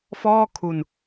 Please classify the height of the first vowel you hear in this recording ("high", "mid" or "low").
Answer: mid